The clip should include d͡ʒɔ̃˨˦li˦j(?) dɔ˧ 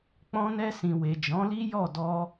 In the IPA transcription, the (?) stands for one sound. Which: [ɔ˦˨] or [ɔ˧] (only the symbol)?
ɔ˦˨